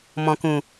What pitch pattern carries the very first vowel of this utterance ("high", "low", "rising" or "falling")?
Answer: low